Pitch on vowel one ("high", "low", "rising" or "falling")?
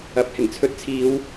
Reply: low